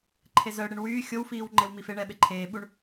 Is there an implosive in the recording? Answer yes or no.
yes